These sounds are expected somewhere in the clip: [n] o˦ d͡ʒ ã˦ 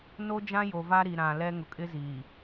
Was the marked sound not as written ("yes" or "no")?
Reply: no